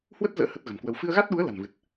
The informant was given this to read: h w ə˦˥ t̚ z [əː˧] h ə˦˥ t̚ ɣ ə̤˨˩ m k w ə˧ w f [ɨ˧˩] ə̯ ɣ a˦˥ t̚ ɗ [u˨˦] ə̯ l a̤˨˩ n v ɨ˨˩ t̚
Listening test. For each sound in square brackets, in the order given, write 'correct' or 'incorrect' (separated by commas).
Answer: incorrect, incorrect, correct